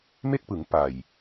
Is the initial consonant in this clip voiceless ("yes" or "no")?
no